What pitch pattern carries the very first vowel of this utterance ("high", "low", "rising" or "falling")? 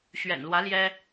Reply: low